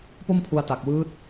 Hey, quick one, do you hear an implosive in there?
no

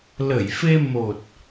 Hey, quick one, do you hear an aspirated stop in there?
no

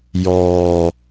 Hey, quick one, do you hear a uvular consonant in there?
no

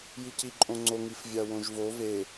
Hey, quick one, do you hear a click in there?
yes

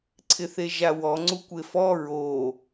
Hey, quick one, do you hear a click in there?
yes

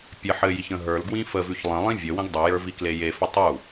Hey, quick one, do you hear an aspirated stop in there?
no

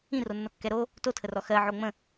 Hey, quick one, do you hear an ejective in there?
no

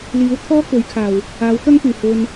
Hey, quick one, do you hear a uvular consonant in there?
no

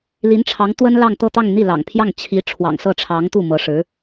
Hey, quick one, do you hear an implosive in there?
no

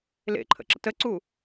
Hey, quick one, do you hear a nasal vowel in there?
no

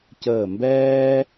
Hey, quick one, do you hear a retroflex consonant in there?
no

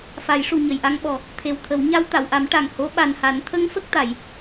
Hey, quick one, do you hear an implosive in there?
yes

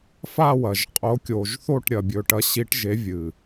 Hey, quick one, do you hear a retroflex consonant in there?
yes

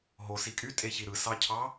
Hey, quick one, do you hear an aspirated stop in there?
yes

